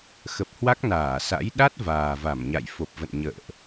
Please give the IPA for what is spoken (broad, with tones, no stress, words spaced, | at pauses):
xə˨˩p̚hwa˦˥k̚ naː˧˩sa̰˧˥j ɗa˦˥t̚ vaː˨˩va˧˩mɲa̰˧˨j fo˨˩p̚və̰˧˨nɲə̰ː˧˨ʔ